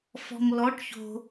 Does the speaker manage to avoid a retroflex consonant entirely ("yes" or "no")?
no